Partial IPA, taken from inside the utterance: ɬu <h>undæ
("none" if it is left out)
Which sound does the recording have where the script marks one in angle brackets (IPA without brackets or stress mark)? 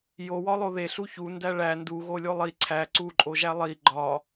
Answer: ç